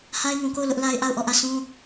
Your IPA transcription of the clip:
h a˦ ɪ̯ ŋ ũ˨ k o˦˨ ʊ̯ l ʊ˦ ʔ l a˦ ɪ̯ ʔ a˦˨ ʊ̯ ʔ ɔ˦˨ ʔ ä˦˨ sʰ ũ˦

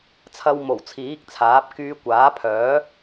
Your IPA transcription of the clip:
t͡sʰ ɐ˧ w m o˨˩ w t͡sʰ iː˨˥ k̚ t͡sʰ aː˨˥ p̚ k yː˧ kʷ aː˨˥ pʰ œː˨˥

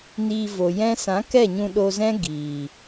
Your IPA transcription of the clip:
n iː˧ v o˨ j ɛ̃˦ s ã˨˦ k ɛ˦˨ ɲ ũ˧ ɗ o˧ z ɛ̃˦ ɡ iː˨

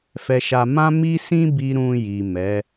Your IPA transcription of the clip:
f ɛ˧ ʃ a˧ m ã˦ m i˦ s ĩ˦ b i˧ ɾ ũ˧ j i˨ m ɛ˨˦

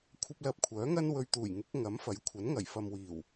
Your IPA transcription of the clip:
kʷʰ ɐ˥ p̚ l ɐ˧ p̚ kʷʰ œː˨˥ ŋ ɐ˥ n w ɵ˧ ɥ t̪ uː˨˩ j ŋ ɪ˨˥ k̚ ŋ ɐ˨˥ m f ɐ˨˥ j kʷʰ ɐ˨˥ n ŋ ɐ˨˩ j f ɐ˨ m w iː˨˩ w

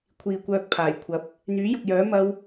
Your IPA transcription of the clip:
kʷʰ iː˨ kʷ œː˧ k̚ pʰ aː˨˩ j kʷʰ ɐ˨˥ p̚ | n̪ yː˨˥ j ʊ˨ k̚ j œː˨˥ m ɐ˥ w

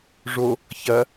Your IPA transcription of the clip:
ʐ o | ç ɐ

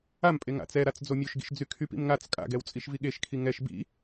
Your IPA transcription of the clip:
a m pʼ e ŋ a̰ t͡s ɛ ɾ a t͡s d͡z o mʲ o ʃ ɡ ḭ ʃ d͡z y kʰ y p ḭ m ŋ a t͡s kʼ a̰ ɡ ɛ w t͡sʼ i ʃ v i ɠ e ʃ kʰ i ŋ ɛ ʃ b ḭ

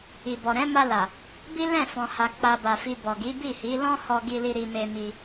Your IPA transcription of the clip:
i˨ b ɔ˨ ɾ ɛ̃˨˦ m a˧ l a˨ | b i˦ l ɛ̃˦˨ f ɔ̃˨ h a˨ k͡p a˧ b a˨ f i˧ b ɔ˨ ɡ i˨˦ b i˦˨ h i˨˦ l ɔ̃˦ h ɔ˧ ɡ i˧ l i˧ ɾ i˧ m e˧ m i˧

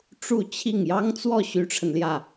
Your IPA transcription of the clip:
ʈ͡ʂ u˥˧ t͡ɕʰ i˥˩ ŋ j ɑ˥ ŋ t͡s w ɔ˥˩ ɕ y˥ ʈ͡ʂʰ ə˨ n l j ä˥˩

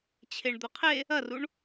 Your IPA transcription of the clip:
t͡ɕʰ e ɳ d̪ ɵ qʰ e | ɐ r u ɳ

